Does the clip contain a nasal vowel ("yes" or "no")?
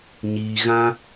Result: yes